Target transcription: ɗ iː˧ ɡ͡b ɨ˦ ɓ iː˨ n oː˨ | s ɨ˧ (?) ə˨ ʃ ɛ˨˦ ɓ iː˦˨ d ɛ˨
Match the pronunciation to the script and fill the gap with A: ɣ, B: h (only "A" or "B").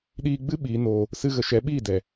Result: A